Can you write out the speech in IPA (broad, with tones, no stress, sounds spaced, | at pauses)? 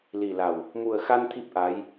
l i˨˩ l a˨˩ w | m u˨˩ ə̯ x a˧ n t̪ʰ i˦˥ p̚ ʔ a˧˥ j